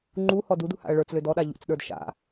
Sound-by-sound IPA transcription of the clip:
ŋ͡ǃuhɔ dudṳha̰ɐ̯ ɭə˞t͡slød ɔɗa ʎṵt͡sɗə˞d ʃa̰

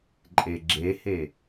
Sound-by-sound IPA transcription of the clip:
ǃʼeɡ͡ǁehe

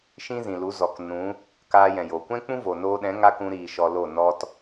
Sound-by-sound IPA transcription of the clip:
ʃĩ˦zĩ˨lu˨˦zɔ˨k nũ˨˦ | kaː˧jɛ̃˨joː˨ kʷɛ̃˦k͡pũ˦ vo˨noː˧ɗɛ̃˨˦ ŋa˦kũ˧ɾiː˨ ʃɔ˧lo˦˨ nɔ˧t

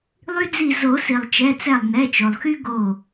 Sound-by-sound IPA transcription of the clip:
lˠy˦d͡zi˧˩ zo˨˩˦si˩lˠ t͡ʃɛ˩˧˩t͡sɛ˧˩lˠ nɛ˩˧˩t͡ʃo˩lˠxy˦ ɡo˧˩

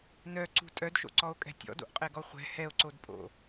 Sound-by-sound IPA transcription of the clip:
nœǀṳ tʼœdʃo̰ǀɔo̯kʼɛ̤ tʲɔ̰do̰ʔqʼɛɡɔ χʷɛ̤ hɛo̯ǀodpʼo̰

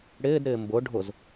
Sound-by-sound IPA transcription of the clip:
ɽɪːdɾɪː mbʊ ɖʱʊz

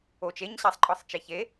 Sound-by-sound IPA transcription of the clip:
ot͡ʃ eɲɕæsˤǃʼɒsˤ t͡ʃeçe

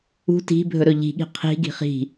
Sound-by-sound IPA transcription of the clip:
ṳ ti̤ bʱɵɾɵʎi̤ɠi̤ qʰi̤ɡi̤ χi̤

